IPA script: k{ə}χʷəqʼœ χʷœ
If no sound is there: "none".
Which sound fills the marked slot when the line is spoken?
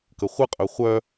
ə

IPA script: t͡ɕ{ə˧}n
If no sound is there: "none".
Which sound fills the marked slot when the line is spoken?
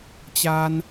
a˧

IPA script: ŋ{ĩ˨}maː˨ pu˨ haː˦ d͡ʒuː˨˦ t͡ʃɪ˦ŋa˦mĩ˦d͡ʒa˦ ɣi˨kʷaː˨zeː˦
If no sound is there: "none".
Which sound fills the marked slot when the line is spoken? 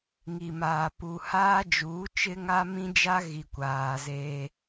i˨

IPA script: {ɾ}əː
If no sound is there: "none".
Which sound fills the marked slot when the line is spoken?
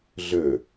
ɮ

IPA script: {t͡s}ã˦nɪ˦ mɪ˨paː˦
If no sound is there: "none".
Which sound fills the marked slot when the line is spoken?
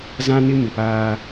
z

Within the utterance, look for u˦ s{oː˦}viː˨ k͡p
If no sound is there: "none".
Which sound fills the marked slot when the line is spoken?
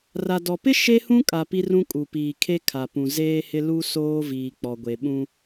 oː˦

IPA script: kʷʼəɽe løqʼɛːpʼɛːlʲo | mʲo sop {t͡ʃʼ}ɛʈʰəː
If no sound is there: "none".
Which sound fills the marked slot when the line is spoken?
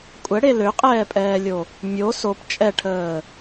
t͡ʃʼ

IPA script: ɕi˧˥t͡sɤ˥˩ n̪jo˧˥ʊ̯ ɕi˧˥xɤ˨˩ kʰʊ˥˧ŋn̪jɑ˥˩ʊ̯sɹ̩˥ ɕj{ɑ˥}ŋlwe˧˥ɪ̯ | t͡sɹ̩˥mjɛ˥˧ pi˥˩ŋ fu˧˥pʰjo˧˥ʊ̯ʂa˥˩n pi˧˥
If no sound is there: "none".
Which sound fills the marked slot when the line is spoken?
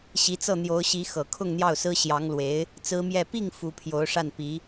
ɑ˧˥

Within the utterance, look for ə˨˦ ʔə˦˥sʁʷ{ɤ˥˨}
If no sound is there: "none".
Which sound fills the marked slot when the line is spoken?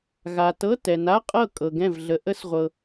ɤ˨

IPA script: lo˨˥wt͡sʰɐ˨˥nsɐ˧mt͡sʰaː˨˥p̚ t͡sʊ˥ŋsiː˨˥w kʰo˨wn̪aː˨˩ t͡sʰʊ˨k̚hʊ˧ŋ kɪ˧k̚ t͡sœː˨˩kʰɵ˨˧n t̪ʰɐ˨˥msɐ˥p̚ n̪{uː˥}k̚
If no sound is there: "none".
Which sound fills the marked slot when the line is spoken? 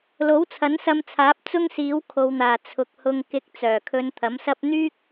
yː˥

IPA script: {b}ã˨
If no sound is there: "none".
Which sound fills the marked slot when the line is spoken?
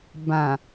b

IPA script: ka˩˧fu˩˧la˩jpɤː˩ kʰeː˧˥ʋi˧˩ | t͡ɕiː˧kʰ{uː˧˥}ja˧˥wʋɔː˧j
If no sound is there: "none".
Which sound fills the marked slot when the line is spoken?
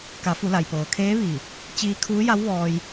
uː˧˥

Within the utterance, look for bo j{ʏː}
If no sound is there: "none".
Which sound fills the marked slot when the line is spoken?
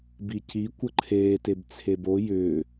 ʏː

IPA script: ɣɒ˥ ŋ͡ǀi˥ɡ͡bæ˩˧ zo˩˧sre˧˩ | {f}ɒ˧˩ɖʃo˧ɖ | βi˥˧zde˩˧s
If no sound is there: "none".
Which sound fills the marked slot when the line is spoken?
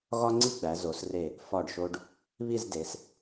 f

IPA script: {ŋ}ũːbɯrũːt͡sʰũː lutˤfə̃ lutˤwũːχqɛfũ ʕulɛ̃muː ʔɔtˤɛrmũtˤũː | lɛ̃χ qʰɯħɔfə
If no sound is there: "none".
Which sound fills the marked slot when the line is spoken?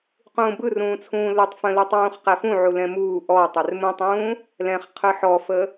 q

